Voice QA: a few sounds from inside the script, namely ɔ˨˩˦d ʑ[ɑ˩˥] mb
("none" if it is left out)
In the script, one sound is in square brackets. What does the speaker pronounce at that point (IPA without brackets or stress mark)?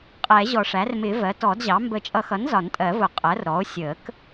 ɑ˩˥